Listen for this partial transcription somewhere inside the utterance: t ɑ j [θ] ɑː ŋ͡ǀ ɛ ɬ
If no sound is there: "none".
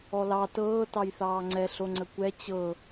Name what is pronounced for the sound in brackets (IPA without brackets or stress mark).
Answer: θ